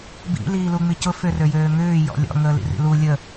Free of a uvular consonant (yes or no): yes